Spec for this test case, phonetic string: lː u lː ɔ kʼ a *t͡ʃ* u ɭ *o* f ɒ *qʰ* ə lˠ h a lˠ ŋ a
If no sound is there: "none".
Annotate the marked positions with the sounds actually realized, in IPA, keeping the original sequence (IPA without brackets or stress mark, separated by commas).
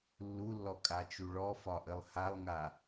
t͡ʃ, ɔ, ʔ